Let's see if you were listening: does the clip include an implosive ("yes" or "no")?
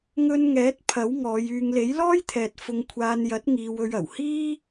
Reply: no